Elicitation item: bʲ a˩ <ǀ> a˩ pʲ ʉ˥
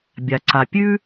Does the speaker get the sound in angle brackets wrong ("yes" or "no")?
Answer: no